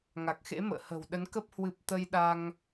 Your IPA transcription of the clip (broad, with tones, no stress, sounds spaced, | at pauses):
ŋ a˨˩ k̚ x ḛ˧˥ m ə̰ː˧˨ h ə̤˨˩ w ɗ ə˨˦ n k ə˦˥ p̚ h w ɨ˨˩ p̚ t̪ ə˧ j ɗ a˧ ŋ